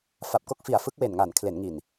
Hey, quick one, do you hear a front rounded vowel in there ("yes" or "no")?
no